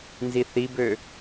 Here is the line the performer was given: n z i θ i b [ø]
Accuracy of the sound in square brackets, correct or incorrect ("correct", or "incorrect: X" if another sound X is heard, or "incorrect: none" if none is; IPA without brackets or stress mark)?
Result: correct